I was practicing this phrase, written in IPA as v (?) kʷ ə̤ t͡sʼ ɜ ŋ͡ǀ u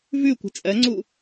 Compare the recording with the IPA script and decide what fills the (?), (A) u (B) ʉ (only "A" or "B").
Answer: B